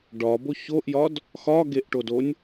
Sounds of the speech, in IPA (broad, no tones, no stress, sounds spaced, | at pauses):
ɖ ɒ b o ç o ʔ j ɒ d | x ɒ ɡ e ʔ ʈ o d o nʲ